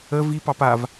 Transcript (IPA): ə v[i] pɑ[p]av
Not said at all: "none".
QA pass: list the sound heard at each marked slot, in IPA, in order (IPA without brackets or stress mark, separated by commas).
i, p